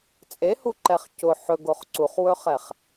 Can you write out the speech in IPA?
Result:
t͡sʼehuǃɛχ cʊ ħɵɡoχ ǀuχwɵχɛχ

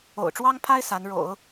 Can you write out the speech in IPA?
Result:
o̰˨˩ʊ̯ʈ͡ʂwɑ˥ŋpʰa˥ɪ̯ sa˧˥nɻo̰˨˩˦ʊ̯

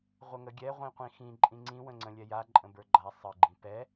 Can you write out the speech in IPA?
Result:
ʁʷəŋəɡʲɛ ʁʷĩqʷĩxĩ ǃʼĩŋ͡ǀĩ wə̃ŋ͡ǀə̃lʲɛja ǃʼə̃bə˞ɡ͡ǃa sˤə ɡ͡ǃĩpɛ

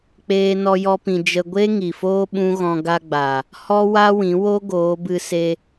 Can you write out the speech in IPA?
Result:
k͡peː˦nɔ˦jɔ˦pĩ˧ d͡ʒə˦ ɡʷe˦ ŋi˨foː˦ ɓũ˦ɣɔ̃˧ ɡa˧ɡ͡ba˨ | hɔ˦wa˦wĩ˨˦wo˦ ɡoː˨˦bɨ˧ se˧

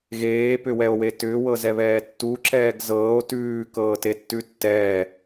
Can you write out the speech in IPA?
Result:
ɣeːpʏwɛo̯we tʏːwɤzɛβɛː tːuǁɛːɡ zɤːo̯ tʉːkɤːtetːʉ tːɛː

